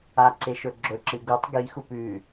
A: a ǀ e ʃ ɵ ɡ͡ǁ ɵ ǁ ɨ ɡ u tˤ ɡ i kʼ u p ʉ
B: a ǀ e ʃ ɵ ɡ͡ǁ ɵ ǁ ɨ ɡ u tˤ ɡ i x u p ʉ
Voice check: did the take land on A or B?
B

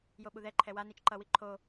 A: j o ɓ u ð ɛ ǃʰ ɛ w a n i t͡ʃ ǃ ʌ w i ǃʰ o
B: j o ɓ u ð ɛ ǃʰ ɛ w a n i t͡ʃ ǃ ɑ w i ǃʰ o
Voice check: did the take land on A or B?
A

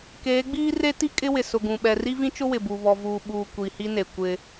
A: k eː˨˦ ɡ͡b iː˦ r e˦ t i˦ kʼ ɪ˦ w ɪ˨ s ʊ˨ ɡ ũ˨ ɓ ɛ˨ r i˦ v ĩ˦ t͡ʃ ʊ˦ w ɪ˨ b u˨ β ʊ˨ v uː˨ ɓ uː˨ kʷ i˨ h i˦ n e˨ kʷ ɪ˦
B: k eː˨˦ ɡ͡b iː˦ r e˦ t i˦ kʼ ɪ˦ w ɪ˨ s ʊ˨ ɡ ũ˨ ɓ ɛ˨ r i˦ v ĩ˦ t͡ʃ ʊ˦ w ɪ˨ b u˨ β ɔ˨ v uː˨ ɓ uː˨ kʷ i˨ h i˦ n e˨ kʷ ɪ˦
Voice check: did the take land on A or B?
B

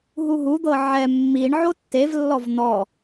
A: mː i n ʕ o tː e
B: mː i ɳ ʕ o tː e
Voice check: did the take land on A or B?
B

